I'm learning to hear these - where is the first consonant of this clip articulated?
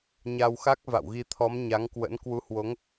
palate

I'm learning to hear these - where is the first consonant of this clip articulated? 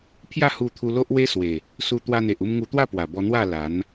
lips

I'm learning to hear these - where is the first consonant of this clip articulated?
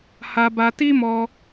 throat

